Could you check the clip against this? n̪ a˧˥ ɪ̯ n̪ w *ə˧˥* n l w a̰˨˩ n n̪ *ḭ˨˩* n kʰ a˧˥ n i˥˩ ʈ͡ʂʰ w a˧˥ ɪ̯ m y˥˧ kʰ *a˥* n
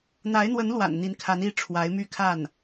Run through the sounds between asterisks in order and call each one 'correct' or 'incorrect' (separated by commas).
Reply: correct, incorrect, incorrect